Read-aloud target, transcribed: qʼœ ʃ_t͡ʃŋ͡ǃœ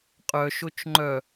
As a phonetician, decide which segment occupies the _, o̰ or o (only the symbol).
o